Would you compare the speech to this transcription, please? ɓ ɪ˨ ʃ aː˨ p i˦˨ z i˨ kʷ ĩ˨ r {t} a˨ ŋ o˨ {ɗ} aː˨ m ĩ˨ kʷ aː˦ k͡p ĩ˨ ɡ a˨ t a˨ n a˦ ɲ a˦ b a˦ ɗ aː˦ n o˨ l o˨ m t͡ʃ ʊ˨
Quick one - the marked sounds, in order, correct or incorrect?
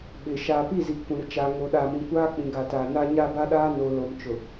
incorrect, correct

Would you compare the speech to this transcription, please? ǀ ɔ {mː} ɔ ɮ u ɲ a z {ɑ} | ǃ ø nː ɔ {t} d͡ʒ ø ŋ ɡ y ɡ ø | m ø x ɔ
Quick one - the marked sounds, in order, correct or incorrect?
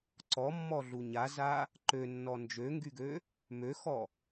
correct, incorrect, incorrect

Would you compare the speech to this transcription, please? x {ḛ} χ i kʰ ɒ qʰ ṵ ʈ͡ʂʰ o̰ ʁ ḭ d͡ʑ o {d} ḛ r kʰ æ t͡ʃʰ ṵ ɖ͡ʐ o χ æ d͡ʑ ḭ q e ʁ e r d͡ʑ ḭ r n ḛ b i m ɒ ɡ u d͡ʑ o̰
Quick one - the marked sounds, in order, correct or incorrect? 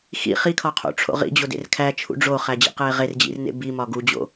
incorrect, correct

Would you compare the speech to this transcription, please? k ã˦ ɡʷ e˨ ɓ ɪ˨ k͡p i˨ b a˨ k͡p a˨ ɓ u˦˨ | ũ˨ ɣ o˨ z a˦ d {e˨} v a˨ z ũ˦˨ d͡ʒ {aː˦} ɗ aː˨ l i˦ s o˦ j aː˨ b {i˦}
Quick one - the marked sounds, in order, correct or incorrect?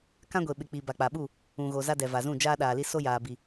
incorrect, correct, incorrect

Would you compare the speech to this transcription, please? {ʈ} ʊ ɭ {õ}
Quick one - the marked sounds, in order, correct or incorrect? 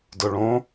incorrect, correct

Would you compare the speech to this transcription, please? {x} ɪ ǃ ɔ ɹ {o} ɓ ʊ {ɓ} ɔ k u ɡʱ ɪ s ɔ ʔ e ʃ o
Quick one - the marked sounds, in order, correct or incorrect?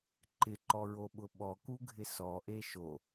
incorrect, correct, correct

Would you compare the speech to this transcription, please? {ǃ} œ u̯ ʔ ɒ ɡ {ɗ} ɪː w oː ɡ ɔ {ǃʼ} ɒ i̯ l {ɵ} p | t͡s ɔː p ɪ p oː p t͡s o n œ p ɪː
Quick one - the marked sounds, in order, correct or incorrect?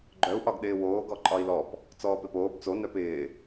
incorrect, correct, correct, incorrect

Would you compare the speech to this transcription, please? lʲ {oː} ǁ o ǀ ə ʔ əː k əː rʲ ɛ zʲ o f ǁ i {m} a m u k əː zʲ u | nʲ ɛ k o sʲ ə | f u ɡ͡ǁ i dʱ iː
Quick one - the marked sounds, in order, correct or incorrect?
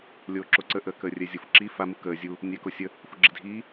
correct, incorrect

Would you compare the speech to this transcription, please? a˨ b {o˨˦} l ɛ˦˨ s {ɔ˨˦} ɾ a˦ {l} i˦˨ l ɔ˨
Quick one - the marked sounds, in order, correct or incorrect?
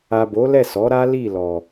correct, correct, correct

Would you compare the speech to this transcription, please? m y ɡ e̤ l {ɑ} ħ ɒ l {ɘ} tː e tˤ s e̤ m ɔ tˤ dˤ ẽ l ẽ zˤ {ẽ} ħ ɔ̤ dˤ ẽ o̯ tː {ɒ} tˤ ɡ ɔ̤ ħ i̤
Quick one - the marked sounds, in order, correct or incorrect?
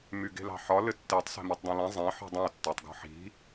incorrect, correct, correct, incorrect

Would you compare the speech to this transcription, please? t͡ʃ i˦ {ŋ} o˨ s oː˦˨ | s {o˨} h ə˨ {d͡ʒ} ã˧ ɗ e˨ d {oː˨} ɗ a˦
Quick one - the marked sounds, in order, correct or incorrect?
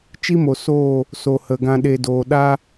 incorrect, correct, incorrect, correct

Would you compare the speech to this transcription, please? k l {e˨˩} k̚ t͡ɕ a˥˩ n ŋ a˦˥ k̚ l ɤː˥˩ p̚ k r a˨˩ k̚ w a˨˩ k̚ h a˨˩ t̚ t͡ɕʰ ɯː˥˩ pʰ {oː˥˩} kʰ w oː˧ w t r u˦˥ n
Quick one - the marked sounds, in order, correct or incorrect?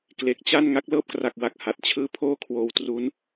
correct, correct

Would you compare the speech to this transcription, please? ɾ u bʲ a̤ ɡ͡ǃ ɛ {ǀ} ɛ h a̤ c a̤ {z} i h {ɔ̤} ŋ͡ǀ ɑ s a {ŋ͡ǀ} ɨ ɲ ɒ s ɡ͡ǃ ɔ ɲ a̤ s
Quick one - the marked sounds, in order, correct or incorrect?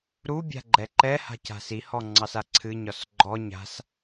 incorrect, incorrect, incorrect, incorrect

